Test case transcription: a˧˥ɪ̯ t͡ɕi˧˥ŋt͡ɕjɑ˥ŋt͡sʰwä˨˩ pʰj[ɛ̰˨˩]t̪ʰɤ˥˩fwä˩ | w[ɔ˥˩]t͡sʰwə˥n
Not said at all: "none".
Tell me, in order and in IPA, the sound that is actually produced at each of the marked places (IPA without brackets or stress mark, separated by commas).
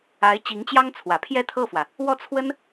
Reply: ɛ˥˧, ɔ˥˩